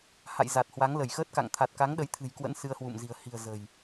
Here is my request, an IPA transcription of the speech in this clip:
h a̰˧˨ j z a˨˩ t̚ h w a˨˦ ŋ l ə˧˩ j x əː˦˥ t̚ k a̰˧˨ ŋ t̪ʰ a˨˩ t̚ k a˨˦ ŋ ɗ ə˨˦ j t̪ʰ ɨ̤˨˩ j k w ə̰˧˥ n s ɨ˧ ə̯ h w ṵ˧˨ m z i̤˨˩ ə̯ h i̤˨˩ ə̯ z ə̤˨˩ j

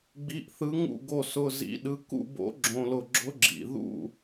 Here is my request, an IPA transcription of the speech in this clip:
ɡ͡b i˧˥˧ ʔ θ ɯ˧˥ ŋ ṵ˥˨ ɡ o˥˨ s ʊ˧˥˧ z ḭ˧˥ ɗ ɯ˧˥ k ṵ˥˨ b o̰˧˥ ɡ͡ǁ õ˧˥˧ l ʊ˥˨ ɡ͡ǁ ʊ˧˥ ɡ͡ǁ ḭ˩˧˩ ð ṵ˥˨

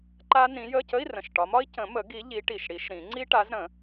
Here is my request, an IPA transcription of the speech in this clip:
ǃ a˦˥ n ĩ˨˦ j ə˧˥˧ c ə˧˥˧ i̯ r ə̃˨˩ ʃ ʈ ɒ˨˦ m ɒ˦˥ i̯ c ə̃˨˩˦ m ə˨˩˦ ɡ i˨˦ ʎ i˨˦ ʈ i˨˩ ʃ ɽ i˨˩˦ ʃ ɾ ĩ˨˩˦ ŋ͡ǀ i˦˥ ʈ a˨˦ z ɾ ə̃˨˩˦

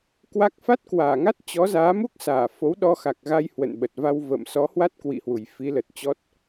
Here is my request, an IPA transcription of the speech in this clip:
k w a˦˥ k̚ f a˦˥ t̚ k w aː˧˩ ŋ a˦˥ t̚ t͡ɕ ɔ˨˦ z aː˨˦ m u˦˥ k̚ s aː˧˩ f o˨˦ w ɗ ɔ˧ x a˨˩ k̚ ɣ a˧ j h w ə̰˧˨ n ɓ ə˨˩ t̚ v a˧ w v ə̰ː˧˨ m s ɔ˨˦ h w a˦˥ t̚ k w ḭ˧˨ h w u˧˩ j f i˨˦ l ə˨˩ t̚ t͡ɕ ɔ˦˥ t̚

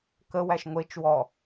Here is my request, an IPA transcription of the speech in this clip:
k ə w æ ʃ ŋʷ e t͡ʃ w ɔ

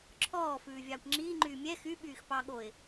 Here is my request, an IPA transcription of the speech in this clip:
ǁʰ ɔː f ʉː vʲ ɑː kʷ ŋ͡ǁ iː ŋ͡ǃ yː mʲ ɛ x y ɓ yː x p ɑ ɠ o ɪ̯

